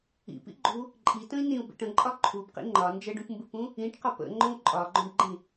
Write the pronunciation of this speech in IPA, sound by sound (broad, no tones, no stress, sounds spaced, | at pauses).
ḭ p ḭ ɡ͡ǃ u | ǃʼ i t ə̃ i̯ n ĩ u̯ b ḭ ʈ ə̃ ǃʼ ɒ ǃʰ u b q ḭ ŋ͡ǃ ɒ n d͡ʒ ə ɖ ũ p m b ɨ p ũ | ĩ ʈ q ɒ p ə̰ ŋ͡ǃ õ u̯ ǃʼ ɒ ɡ͡ǃ õ ɖ ɡ͡ǃ ĩ